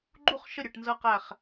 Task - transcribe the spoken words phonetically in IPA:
ɡ͡ǃ u˥˩ χ ʃ ə˥˩ ɾʲ ɘ˧˩ ʈ n z ɤ˧ q æ˧˩ χ

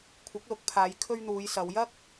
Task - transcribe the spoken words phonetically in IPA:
kʷʰ ɪ˨˥ k̚ l ʊ˨ k̚ pʰ aː˨˧ j kʰ ɵ˧ ɥ n̪ uː˨˧ j s ɐ˨˧ w j ɐ˥ k̚

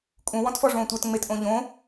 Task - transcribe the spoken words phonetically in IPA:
kʼ ũ w ɔ̃ t f ɔ ʐ õː tʷ ə˞ t ŋ͡m e t ʔ õ ʎ õ

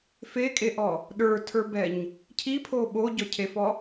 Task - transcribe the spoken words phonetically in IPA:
f e kʼ e ʔ ɔ | ɗ ə˞ tʰ ə˞ b ɛ ɲ | cʰ i pʰ o ɓ o ɟ ɔ cʰ e f ɔ

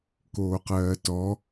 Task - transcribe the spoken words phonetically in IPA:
k oː q ɜː t ɔ

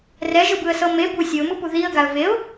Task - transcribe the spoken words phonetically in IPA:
r ɛ ʒ ɯ b ɯ ə̯ s ɤ m e b u sʲ ɤ ʊ̯ m ɯ p u ð i ə̯ ɡ a ə̯ v e ʊ̯

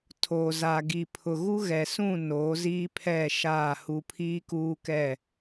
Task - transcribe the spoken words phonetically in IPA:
tʰ oː˨ z aː˨ ɡ i˨ pʰ ʊ˨ ɣ u˦ ɣ ɛ˨ s ũ˦˨ n oː˨˦ z iː˦ pʰ ɛ˦˨ ʃ aː˦˨ h u˦ pʰ iː˦ k uː˦ k ɛ˦˨

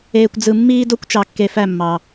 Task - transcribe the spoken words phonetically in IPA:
eː˧ kʷ d͡z ɯ˧ mː iː˦ d o˦ kʷ t͡ʃ ɑ˧ kː e˧ f æ˦˨ mː ɑ˨

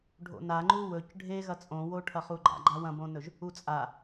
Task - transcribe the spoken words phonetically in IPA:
ɖʱ o̰ n a ŋ͡ǃ u w ɵ c ɖʱ e ɣ ɐ t͡sʼ õ w o ʈʰ ɐ χ u ɡ͡ǃ a̰ ɡ͡ǃ a w ɐ̃ b õ n ɵ ʒ | u t͡sʼ a

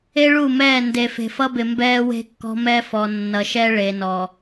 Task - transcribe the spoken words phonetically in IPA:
e˦ ɭ u˦˨ m ɛː˦˨ n d e˨ f e̤˨ f ʌ˦ b ɪ˨ m b ɛː˦ w e̤˦ kː ɔ̤˦ m ɛ˦ f ɔ˨ nː ʌ˨ ʃ ɛ˦ ɭ e˨ n ɔ˨

